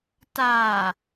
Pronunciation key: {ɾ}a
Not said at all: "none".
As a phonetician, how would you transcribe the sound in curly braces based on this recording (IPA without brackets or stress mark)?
t